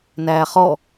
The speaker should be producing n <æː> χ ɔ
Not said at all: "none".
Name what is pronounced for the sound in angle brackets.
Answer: æː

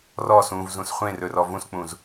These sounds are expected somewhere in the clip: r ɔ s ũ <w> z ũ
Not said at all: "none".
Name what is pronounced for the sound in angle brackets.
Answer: v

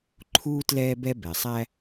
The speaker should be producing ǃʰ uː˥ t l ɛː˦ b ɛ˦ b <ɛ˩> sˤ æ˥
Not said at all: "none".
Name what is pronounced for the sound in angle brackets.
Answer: ɛ˨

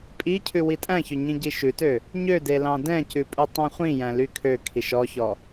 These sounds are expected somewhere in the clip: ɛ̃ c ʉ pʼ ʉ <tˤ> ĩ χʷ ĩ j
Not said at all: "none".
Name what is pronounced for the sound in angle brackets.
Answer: tˤ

